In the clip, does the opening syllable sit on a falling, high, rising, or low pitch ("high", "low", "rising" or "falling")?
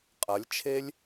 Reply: rising